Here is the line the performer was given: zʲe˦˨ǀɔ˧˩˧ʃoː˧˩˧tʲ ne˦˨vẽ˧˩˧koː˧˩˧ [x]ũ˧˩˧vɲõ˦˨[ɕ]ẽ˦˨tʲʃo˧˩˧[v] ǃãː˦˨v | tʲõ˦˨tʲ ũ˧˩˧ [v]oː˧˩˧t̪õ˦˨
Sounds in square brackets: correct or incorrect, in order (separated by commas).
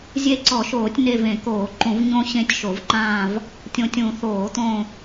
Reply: incorrect, correct, correct, incorrect